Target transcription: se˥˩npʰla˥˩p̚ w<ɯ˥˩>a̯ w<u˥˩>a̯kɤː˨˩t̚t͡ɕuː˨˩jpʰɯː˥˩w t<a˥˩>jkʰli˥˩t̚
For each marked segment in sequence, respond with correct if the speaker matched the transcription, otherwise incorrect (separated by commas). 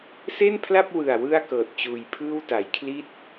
incorrect, incorrect, incorrect